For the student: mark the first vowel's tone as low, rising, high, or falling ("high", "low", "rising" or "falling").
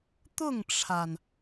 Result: falling